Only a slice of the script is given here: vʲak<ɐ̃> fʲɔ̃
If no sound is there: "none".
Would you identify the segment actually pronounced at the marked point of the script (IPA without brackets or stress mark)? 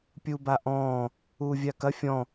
ɐ